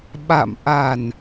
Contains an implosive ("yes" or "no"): yes